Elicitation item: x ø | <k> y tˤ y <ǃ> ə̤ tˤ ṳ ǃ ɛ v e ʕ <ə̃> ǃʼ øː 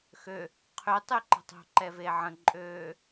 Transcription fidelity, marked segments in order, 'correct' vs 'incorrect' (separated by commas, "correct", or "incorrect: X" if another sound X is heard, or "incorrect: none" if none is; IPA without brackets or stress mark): incorrect: qʰ, correct, correct